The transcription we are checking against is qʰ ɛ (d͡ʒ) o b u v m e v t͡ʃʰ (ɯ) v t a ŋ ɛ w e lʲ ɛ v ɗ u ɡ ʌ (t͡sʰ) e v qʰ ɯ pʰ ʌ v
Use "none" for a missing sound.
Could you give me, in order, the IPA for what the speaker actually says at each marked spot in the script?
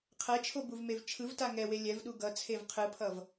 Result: t͡ʃʰ, ɯ, t͡sʰ

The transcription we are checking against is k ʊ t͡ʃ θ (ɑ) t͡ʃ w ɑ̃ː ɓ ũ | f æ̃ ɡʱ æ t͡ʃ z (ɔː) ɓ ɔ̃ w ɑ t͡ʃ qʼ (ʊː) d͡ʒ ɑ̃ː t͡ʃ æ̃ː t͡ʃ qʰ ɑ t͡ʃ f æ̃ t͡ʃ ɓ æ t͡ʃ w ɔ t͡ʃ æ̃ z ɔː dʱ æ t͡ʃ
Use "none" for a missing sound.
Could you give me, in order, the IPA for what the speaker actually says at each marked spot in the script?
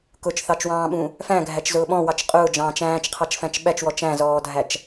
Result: ɑ, ʊː, ʊː

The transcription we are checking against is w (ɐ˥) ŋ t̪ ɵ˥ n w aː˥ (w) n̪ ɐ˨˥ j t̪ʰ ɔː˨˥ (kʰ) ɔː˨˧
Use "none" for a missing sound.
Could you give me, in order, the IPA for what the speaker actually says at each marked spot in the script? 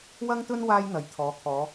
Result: ɐ˥, j, kʰ

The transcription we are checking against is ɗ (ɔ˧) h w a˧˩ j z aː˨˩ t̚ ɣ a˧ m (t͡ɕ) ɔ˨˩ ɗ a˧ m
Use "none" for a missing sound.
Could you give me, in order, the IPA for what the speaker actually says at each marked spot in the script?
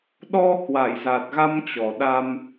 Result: ɔ˧, t͡ɕ

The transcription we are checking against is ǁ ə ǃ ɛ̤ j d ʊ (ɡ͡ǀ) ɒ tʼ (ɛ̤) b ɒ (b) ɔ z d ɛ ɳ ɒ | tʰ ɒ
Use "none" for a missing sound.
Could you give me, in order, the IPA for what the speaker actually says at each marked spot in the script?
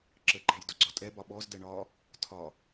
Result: ɡ͡ǀ, ɛ, ɓ

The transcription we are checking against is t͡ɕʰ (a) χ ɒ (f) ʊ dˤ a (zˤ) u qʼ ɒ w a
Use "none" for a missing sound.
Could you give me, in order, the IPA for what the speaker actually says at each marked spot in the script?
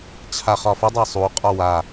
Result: a, f, sˤ

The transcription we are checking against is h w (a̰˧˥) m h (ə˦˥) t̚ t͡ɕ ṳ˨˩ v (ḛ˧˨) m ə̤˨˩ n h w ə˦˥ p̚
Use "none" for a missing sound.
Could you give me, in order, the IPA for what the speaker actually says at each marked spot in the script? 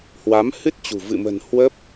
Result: a˨˦, ɨ˦˥, ɨ̰˧˨

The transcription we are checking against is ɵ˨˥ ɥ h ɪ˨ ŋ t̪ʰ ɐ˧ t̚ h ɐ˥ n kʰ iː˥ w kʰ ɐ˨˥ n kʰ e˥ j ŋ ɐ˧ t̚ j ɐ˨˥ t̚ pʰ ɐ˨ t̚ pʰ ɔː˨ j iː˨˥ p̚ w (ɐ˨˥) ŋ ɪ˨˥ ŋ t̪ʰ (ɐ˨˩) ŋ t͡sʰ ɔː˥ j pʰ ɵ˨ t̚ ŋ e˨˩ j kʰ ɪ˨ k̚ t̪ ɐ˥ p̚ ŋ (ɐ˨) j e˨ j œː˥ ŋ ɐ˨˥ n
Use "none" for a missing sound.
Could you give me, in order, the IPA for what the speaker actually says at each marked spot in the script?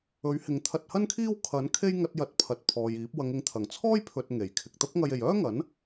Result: ɐ˨˧, ɐ˨˩, ɐ˧

